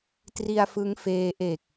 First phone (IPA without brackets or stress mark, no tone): t